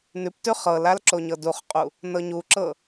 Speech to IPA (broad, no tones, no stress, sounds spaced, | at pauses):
n ʉ p t ʉ χ ɤ l a l ǁ o ɲ ɤ d u χ qʼ u | n ɤ ɲ u ǁ ɤ